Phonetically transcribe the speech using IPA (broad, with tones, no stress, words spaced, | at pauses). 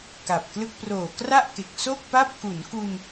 ka˨˩p̚klɯ˥˩k̚ proː˨˩kra˥˩ʔke˨˩k̚ so˥˩k̚pa˥˩p̚ ku˩˦nku˧n